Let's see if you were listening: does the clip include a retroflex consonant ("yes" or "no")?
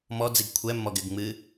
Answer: no